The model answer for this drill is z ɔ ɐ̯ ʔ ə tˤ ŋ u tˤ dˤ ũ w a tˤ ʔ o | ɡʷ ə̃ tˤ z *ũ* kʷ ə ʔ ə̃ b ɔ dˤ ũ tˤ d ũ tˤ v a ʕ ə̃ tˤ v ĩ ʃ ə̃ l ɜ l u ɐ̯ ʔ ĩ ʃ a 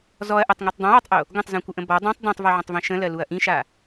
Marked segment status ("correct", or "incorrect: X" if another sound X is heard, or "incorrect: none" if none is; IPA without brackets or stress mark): correct